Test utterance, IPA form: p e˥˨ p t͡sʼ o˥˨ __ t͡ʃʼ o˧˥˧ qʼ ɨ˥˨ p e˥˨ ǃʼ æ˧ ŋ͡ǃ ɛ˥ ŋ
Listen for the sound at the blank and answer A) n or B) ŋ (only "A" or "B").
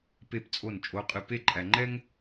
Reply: A